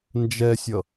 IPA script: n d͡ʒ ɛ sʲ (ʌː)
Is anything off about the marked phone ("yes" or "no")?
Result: yes